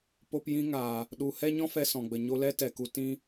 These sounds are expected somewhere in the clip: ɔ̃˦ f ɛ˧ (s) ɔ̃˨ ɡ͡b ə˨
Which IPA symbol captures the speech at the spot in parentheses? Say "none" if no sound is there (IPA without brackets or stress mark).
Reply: s